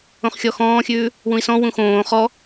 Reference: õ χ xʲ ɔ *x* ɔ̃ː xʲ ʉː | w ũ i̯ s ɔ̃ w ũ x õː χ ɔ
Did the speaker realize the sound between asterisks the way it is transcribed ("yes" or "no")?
yes